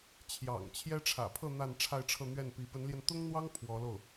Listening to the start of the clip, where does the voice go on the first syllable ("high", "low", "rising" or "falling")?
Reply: low